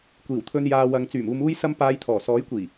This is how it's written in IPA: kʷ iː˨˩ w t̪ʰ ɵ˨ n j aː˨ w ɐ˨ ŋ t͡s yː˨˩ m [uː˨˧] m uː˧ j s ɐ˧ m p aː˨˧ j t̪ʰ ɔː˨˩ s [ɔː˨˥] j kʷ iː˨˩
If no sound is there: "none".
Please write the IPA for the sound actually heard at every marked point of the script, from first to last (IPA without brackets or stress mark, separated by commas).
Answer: uː˨, ɔː˨˥